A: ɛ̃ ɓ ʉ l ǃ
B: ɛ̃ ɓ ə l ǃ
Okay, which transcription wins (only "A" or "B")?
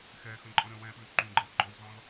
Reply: A